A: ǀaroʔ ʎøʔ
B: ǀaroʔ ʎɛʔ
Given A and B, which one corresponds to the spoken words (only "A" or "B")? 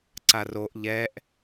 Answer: B